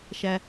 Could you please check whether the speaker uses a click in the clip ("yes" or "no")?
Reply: no